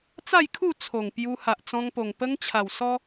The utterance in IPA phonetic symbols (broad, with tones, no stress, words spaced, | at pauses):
t͡sa˥˧jkʰu˥˧ t͡sʰo˨˩ŋpju˧ ha˨ʔt͡sɔ̃˧ŋpo˨˩ŋ pə˦ŋt͡ɕʰa˨˩wsɔ˦